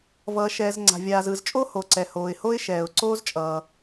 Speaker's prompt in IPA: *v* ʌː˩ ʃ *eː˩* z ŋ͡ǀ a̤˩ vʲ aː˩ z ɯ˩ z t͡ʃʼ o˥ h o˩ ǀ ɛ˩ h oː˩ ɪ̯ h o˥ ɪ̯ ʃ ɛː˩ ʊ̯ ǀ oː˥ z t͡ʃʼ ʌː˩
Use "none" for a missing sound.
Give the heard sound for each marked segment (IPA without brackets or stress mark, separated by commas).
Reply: v, ɛː˩